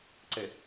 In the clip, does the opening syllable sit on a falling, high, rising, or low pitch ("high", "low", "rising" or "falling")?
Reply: low